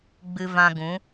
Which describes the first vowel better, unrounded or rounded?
unrounded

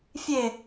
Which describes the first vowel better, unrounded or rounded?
unrounded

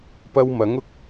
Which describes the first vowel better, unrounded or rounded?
unrounded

